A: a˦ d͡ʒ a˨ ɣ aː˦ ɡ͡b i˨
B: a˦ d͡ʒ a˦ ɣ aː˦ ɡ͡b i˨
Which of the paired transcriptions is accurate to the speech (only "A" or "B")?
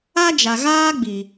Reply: A